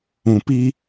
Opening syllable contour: low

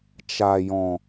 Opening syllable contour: low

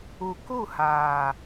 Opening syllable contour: low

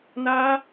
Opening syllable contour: high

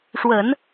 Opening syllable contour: low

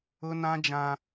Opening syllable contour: high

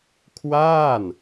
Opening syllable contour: falling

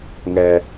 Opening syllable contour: high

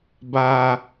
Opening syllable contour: high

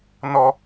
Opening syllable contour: low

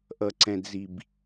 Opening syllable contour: low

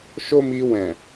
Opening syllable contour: high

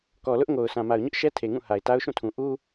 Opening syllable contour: low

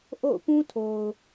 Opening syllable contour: falling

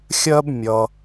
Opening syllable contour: high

